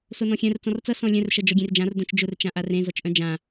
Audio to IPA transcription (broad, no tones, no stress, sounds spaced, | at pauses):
s o n ɔ̃ xʲ œ̃ r t͡s ɔ̃ r t͡s ʌ s ɔ̃ lʲ œ̃ r ʃ ʌ d͡ʒ ɔ ɡʲ ẽ r d͡ʒ ã r d õ t͡ʃ d͡ʒ ʊ r t͡ʃ ã ʔ a r ẽ z ɔ t͡ʃ ʔ œ̃ d͡ʒ ã